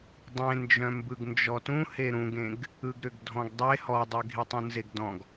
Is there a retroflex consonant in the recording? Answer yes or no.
no